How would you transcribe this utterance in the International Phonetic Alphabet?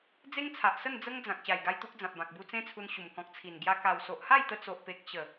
d͡z e˦ ŋ t͡sʰ a˨ ʔ s ə˥˧ n d͡z ə˦ ŋ d͡z ã˨ k̚ ɕ a˨˩ j ɡ a˧ j t̪ u˦ k̚ d͡z ã˨ p̚ b ã˨ k̚ b u˧ t͡s ẽ˦ t͡sʰ u˧ n ɕ u˨˩ m k ɔ̃˨ k̚ t͡sʰ i˨˩ n ɡ j a˧ k a˨˩ w s o˨ ʔ h a˥˧ j t̪ ə˧ t͡s o˨ ʔ p e˨ k̚ ɕ ə˨˩

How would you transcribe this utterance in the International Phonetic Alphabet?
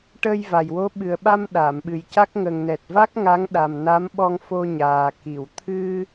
ʈ ə˧ j v a˨˩ j w o˧˥ ɓ ɨ˨˩ ə̯ ɓ a˧ m ɗ a˨˩˨ m ɓ ɨ˨˩ j c a˦˥ k̚ ŋ ə˨˩ ŋ n ɛ˨˩ t̚ v a˦˥ k̚ ŋ a˧˥ ŋ ɗ a˨˩ m n a˧˥ m ɓ ɔ˧ ŋ f o˧ ɲ aː˨˩ k i˨˩˨ w t̪ʰ ɨ˧

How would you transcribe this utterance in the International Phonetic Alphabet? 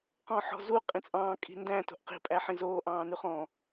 q ɔ̃ ħ ɔ̤ z u qʼ ĩ t͡sʼ ɑ̃ː kʼ i̤ n d æ̃ t o̤ ʔ q i̤ pʼ æ ħ ĩ z oː ʔ ɑ̃ː n ʉ χ ɔ̃

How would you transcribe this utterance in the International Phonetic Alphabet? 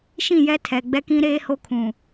ʃ ĩ˦˨ j ɛ˦ tʰ ɛ˨ ɡ͡b ɛ˦ k ĩ˦ ɾ eː˦ h o˦ kʰ ũ˨

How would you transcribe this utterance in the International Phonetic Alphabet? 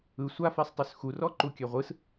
ɯ sʷ a f e sˤ tˤ y s x u r ɔ ǃ u kʲ ɛ ʁʷ ɯ s

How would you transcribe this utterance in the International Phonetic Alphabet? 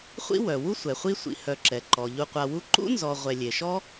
χʷ ḭ˥ w œ˩ w u˥ sʷ ɛ˩ χʷ i˦ sʷ ḭ˨ h œ˨ ǁ ɛ˩ ǃ ɔ˩ ʎ u˨ qʷ a˨ w u˦ ǃ ṵ˥ n z ɔ˨ ʁʷ ɛ˨ lʲ e˩ ʃ ɔ˥

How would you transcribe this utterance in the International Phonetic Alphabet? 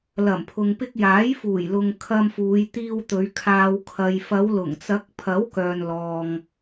l ɐ˨˩ m pʰ ʊ˨ ŋ p ɪ˧ k̚ j aː˨˥ j f uː˨˩ j l ʊ˨ ŋ kʰ ɐ˧ m f uː˨˧ j t̪ iː˧ w t̪ ɵ˨˧ ɥ kʰ aː˨ w kʰ ɐ˨ j f ɐ˨˧ w l ʊ˨˩ ŋ t͡s ɐ˨˥ k̚ pʰ ɐ˨˥ w k œː˨ n l ɔː˨ ŋ

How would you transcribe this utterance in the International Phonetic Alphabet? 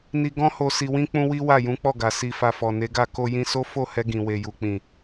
n i˧ ɡ ɔ̃˦ h o˧ s i˧ w ĩ˦ k͡p ũ˦ w i˦ w a˦˨ j ũ˨˦ k͡p ɔ˦˨ ɡ a˨ s i˨ f a˨ f ɔ˨ n e˨˦ ɡ a˦˨ k o˧ j ĩ˧ s o˦ f o˦˨ h ɛ˧ ɡ ĩ˨ w e˨ j u˨ k͡p ĩ˨

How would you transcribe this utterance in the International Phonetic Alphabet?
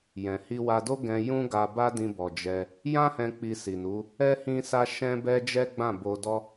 j ɛ̃˨ h i˧ w a˧ d o˦ ɡ ɛ̃˧ j ũ˦ ɡ a˧ b a˦ d ĩ˧ b ɔ˨ d͡ʒ ɛ˧ | j ã˦ h ɛ̃˧ k͡p i˧ s i˨ n u˨˦ | ɛ˦ h ĩ˦ s a˦ ʃ ɛ̃˦ b ɛ˦ d͡ʒ ɛ˦ ɡ͡b ã˦˨ b o˧ d ɔ˦

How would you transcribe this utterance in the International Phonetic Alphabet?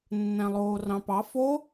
nː æ̃ lˠ oː r ɑ̃ p ɑ f o

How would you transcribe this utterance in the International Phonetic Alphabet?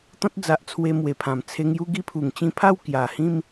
t̪ ɔ̃˦ t̚ d͡z a˨ ʔ t͡sʰ w e˧ m w e˨˩ pʰ ã˨˩ m t͡sʰ e˧ ŋ j u˥˧ ɡ i˦ pʰ u˨˩ ŋ t͡ɕ ĩ˦ pʰ a˥˧ w k j a˨˩ h ĩ˥˧ m

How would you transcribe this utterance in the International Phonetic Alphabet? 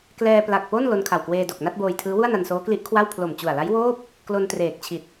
k l ɛː˧ p l a˨˩ k̚ p o˥˩ n l o˧ n kʰ a˨˩ w k w eː˧ d o˨˩ k̚ n a˥˩ t̚ b oː˧ j tʰ ɯː˦˥ w u˥˩ a̯ n a˧ n s oː˦˥ k l i˦˥ ʔ kʰ w a˥˩ w pʰ l o˨˩ m t͡ɕ u˨˩ a̯ l a˦˥ j w oː˥˩ p̚ | k l o˧ n t r eː˨˩ k̚ t͡ɕʰ i˨˩ t̚

